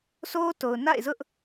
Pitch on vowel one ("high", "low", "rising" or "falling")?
high